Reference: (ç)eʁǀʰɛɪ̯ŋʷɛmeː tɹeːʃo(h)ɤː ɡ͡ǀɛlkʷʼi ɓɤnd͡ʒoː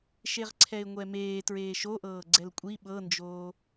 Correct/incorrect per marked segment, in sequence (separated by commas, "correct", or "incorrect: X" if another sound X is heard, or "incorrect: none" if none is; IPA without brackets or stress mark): incorrect: ʃ, incorrect: ʔ